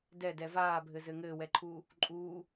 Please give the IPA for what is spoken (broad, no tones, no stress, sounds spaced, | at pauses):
d ɛ d ɛ v aː bʱ ɘ z ɘ ŋ ɘː w ɛ ǃʰ uː | ǃʼ uː